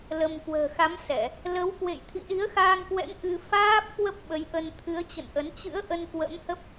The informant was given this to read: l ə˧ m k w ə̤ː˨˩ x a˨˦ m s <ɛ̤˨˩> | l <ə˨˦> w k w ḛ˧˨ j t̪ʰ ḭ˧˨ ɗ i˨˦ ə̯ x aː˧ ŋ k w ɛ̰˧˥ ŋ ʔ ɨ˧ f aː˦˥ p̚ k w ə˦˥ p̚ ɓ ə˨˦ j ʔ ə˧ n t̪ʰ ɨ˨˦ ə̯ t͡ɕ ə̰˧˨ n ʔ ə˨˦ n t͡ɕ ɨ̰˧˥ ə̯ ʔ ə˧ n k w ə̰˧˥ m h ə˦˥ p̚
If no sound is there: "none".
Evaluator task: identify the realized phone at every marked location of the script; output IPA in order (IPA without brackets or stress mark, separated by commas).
ɛ˧˩˨, ə˨˦